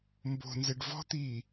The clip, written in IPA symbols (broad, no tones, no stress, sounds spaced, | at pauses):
m b o̤ n z ɛ ɖ v ɔ̤ t̪ iː